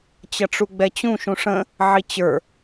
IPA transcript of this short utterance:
t͡ɕ ʌ ʈ͡ʂ u ɡ͡b ɛ t͡ɕ ũ ʃ ũ ʂ ə̃ | ʕ i t͡ɕ ə˞

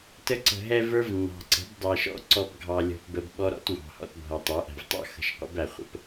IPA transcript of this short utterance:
t ə˧ ǀ ə̤˨ ɦ ɛ˧ v ə˞˦ v nː ɑ̤˨ ǀ ə̤˨˦ b dˤ ɛ˨ ʃ ɔ̰˦ ǀ ɔ˧ b ɡʱ ɑ˨ lʲ ɔ̤˧ p b ə˧ b ɓ ɔ˦ ɾ ɔ̰˦ t w ɑ̤˨ h ɔ̰˧ t bʱ ʌ˨ tˤ ə˞˨˦ ʔ æ̤˨ v tˤ ɑ̰˦ x ə̤˧ ʃ qʷ ə̰˦ b æ˨ χʷ ə̰˦ p

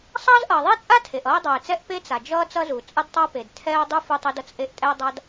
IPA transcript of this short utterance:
sˤ ʌː˥ z ʔ ʌː˩ ðˤ e˥ t͡sʼ a˥ tʰ e˩ ʔ ʌː˥ ɪ̯ dˤ ʌː˩ ɪ̯ t͡s ɛ˥ ʔ p e˥ t͡s a˩ d͡ʒ ʌː˥ t͡s ʌ˥ z u˩ t͡sʼ ʌ˥ d tˤ a˥ p e˩ d tʰ ɛː˥ ʊ̯ dˤ u˥ f u˥ tˤ e˥ d ʌ˥ t͡s ʔ e˥ ʔ tʼ ɛː˥ dˤ a˥ d

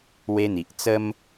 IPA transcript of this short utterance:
w e˦ n̪ i˨ ʔ t͡s ə˦ m

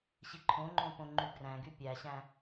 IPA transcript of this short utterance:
ɕ i ǃʰ õ ŋ͡ǃ õ p õ ŋ͡ǃ y ɡ r æ̃ ɡ y pʲ æ ɕ æ̃

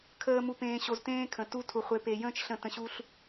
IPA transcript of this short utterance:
kʰ əː˧ m u˨ p ẽː˨ ɕ o˨ z t ẽː˦ kʰ ə̃˨ t u˧ tʰ u˨ χʷ e˨˦ p e˧ j ə̃ː˦ t͡ʃ ɬ ə̃˦˨ t ə̃˧ ɕ u˦ ɬ

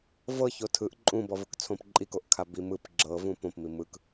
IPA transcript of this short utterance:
v ɤ ç o tʰ ɯ ʔ ǃʼ ũ b ɔ v ɯ k t͡sʰ õ p ǃʼ i k o ʔ kʰ a b i m ɯ p ɡ͡ǁ ɤ v ũ p õ p m i m ɯ k

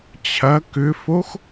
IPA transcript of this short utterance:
t͡ɕʰ ɐ k ʏ f o x

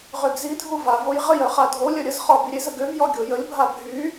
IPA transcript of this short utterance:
ʁ ø ɡ z i dʱ u v a v o j ʁ ə j œ χ a dʱ o lʲ œ ɾʲ ə z χ ɔ b i ɾʲ e z ə ɡ ø v j ɔ ɡʲ o j ə lʲ bʱ a bʱ y

